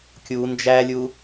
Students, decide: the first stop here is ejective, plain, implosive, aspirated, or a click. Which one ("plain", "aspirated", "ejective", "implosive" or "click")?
plain